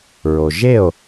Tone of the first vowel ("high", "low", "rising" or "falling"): low